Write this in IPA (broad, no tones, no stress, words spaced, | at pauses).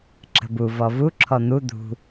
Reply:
ǁə̤bu vɔvu ǁʰɔn̪u d̪ṳ